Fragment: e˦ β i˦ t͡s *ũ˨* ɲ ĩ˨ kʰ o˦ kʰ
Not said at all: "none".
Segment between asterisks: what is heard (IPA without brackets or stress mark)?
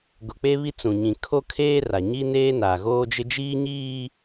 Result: ũ˨